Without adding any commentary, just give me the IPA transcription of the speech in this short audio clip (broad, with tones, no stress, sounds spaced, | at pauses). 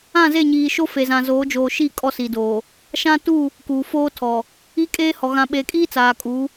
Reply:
ã˦˨ z e˦˨ ɲ iː˨ ʃ o˦ f e˨ z ã˨ z oː˨˦ d͡ʒ oː˨ ʃ i˦˨ kʼ ɔ˦ s i˨ d oː˨ | ʃ ã˦ t u˦˨ | k uː˨ f oː˦ tʰ ɔ˨ | i˦ kʼ eː˦ h ɔ˨ ɣ ã˨ ɓ e˨ kʼ iː˦ t͡s aː˨ kʼ u˨˦